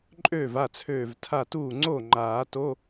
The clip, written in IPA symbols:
ǃʼ øː˥˩ v a˥˩ t͡sʰ øː˧˩ v tʰ a˥˩ t uː˥˩ ŋ͡ǀ o˥˩ ŋ͡ǃ aː˨˩˦ t o˧˥˧

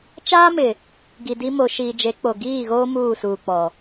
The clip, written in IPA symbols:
t͡ʃ aː˦ m ɪ˨ | ɡ i˨ d i˦ m o˨ ʃ iː˨ d͡ʒ e˨˦ k͡p o˨ ɡ iː˦˨ ɣ oː˦ m uː˦˨ s uː˨ k͡p ɔ˨

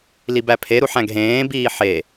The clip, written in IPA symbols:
l i b æ pʰ e ɾ u ħ æ̃ ɡ ɦ ẽː b iː ħ e

